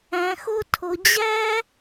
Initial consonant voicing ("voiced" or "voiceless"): voiceless